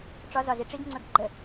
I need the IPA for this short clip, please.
ʈ͡ʂ ɒ z ɒ z i ʈ͡ʂ i ɡ ŋ͡ǀ ɵ ɡ ɡ͡ǃ ə

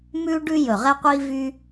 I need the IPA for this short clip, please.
m ʉ˦ ɖ ʉ˦ j ɵ˨˩ ʁ ɛ˦ qʷ i˦ v y˦

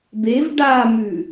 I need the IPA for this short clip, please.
b e v ɖ a m ʉ

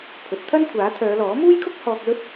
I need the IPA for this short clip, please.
pʰ ɵ˨˥ t̚ t̪ʰ ɐ˥ n kʷʰ aː˨˥ t̪ʰ œː˨˧ l ɔː˨˥ m uː˥ j kʰ ʊ˥ k̚ h ɔː˧ k̚ l ɵ˥ t̚

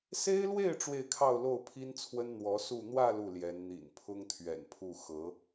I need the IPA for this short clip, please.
s e˥ ɪ̯ l w e˥˧ ɪ̯ ʈ͡ʂ w e˥˧ ɪ̯ kʰ ɑ˥˧ ʊ̯ l o˥˩ ʊ̯ pʰ i˥ n t͡sʰ w ə˥ n n̪ w ɔ˧˥ s u˥˧ n̪ w ä˥˧ l u˥˩ l j ɛ˧˥ n n̪ ḭ˨˩ n pʰ ʊ˥ ŋ t̪ʰ ɥ ɛ̰˨˩ n pʰ u˥˩ x ɤ˧˥

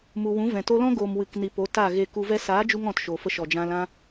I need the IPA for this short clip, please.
m u˨ w ũ˨˦ v ɛ̃˨ t o˧ l ɔ̃˦ ɡ oː˨ m w ɨ˨ k n i˨ p o˨˦ t a˦˨ ɣ e˧ k u˧ v ɛ˦ s aː˨˦ d͡ʒ u˧ ŋ ɔ̃˨ t ʃ o˨ f ə˧ ʃ ɔ˨ d͡ʒ ã˧ l ã˦

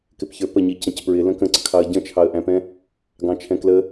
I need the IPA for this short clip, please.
k ɪ p ç ə˞ p ə ɲ i c ə̃ c p ɹ ɪ l ə̃ k ə̃ ǀ ə kʰ ɑ ə̯ ɟ ə̃ t͡ʃʰ ɑ ə̯ ʔ æ̃ p ɛ̃ | ɡ ɑ̃ t͡ʃʰ ɛ̃ k l ə

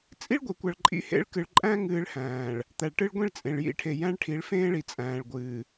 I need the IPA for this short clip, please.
t͡sʼ i˦ ɭ ɡʷ e˨ kʷ a˨ ɭ ǃʼ ḭ˦ h ḛ˦ ɭ k ɨ˨ ɭ ǃʼ æ̃˦ ŋ ɨː˦ ɭ h æ̃ː˨ ɭ | t̪ æ˨ ɭ ʈ ɨ˦ ɭ ɡʷ ĩ˦ ɭ t͡sʼ ẽ˨ ɭ j ḭ˦˨ ʈʰ e˨ j æ̃˦ ɭ ʈʰ i˨˦ ɭ f ẽː˦ ɭ i˨ t͡sʼ æ̃ː˨ ɭ ɡʷ ɨː˨

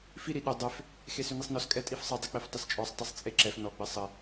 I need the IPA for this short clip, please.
f i ɾ i ɗ ʏ dˤ e f | x e s ʏ n i sˤ n ɔ s kʼ ɛ tʼ i f sˤ ɨ dˤ e k͡p e f tˤ ɘ s t͡ʃʼ ɔ sˤ tˤ i sˤ t͡sʼ e ǁ ɛ f n ɔ ɡ͡b ɘ sˤ ɘ

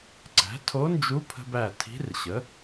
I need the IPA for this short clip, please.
ǀ æ̤˩˥ tʰ o˧˥ n d͡ʒ u˧˥ pʰ ə̤˧ b æ˧˩ tʰ i̤˧˥ r ɕ ə˩˥

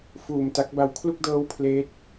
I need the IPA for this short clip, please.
f uː˨˩ m t a˦˥ k̚ b a˧ w kʰ l u˥˩ k̚ d ɤː˦˥ w pʰ l eː˦˥ t̚

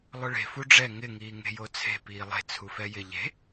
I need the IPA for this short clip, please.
lˠ ʊ ɭ e̤ f u ɖ͡ʐ ɛ ŋ ɪ ŋ iː ŋ e̤ j o t͡sʰ e̤ p iː lˠ e̤ t͡sʰ u f ɛ j ɪ ʎ e̤

